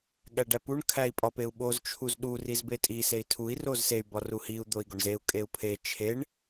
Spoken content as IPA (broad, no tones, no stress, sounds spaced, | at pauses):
ɠ æ ɖ æ p u ɳ kʰ æ i̯ pʼ ɒ p e u̯ ɓ o z t͡ʃʰ u z ɗ u r i z b e tʼ i s e i̯ tʰ u i̯ r o z s e y̯ b ɒ r u h i u̯ d̪ o i̯ ɡ o ɳ z e u̯ kʼ e u̯ pʰ e t͡ʃʰ e ɳ